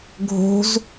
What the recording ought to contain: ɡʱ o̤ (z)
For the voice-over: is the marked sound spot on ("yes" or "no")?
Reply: yes